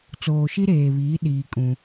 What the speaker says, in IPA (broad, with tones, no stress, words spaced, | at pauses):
t͡soː˨ʃi˦ɾeː˨βiː˨˦ ɗiː˨ kʼũ˦